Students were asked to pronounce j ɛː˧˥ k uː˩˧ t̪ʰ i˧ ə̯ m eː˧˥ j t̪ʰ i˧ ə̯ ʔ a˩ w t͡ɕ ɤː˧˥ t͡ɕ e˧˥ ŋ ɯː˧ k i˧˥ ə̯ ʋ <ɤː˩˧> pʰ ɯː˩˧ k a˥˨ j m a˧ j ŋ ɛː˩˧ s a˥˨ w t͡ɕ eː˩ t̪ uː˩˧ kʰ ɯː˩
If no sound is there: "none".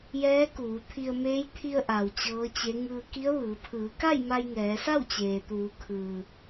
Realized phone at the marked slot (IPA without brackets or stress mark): ɯː˩˧